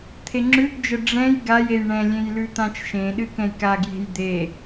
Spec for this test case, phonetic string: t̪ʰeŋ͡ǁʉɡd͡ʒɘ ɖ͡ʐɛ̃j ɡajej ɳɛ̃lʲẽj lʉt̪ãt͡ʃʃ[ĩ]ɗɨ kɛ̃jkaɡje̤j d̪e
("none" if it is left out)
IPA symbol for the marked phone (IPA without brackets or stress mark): ẽ